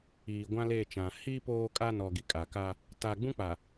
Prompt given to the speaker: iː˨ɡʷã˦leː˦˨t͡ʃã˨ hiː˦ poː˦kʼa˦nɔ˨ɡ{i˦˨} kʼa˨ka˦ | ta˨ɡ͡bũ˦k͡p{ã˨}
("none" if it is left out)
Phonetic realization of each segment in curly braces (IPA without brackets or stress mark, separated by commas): i˨, a˨